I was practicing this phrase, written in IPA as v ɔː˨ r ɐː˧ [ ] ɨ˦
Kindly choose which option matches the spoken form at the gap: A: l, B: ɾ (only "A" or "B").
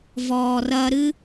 B